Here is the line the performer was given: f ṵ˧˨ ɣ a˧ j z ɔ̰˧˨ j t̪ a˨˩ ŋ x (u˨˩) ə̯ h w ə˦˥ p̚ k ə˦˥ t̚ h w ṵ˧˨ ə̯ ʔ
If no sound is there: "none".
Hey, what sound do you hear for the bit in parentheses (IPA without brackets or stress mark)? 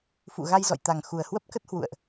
u˨˩